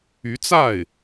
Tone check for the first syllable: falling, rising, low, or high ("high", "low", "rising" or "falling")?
rising